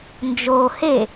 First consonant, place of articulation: alveolar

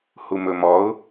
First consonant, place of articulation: glottal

